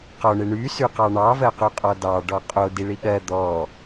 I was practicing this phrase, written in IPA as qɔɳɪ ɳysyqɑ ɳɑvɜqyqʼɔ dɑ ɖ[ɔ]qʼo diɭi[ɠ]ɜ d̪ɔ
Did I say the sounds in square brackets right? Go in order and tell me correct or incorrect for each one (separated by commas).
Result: correct, correct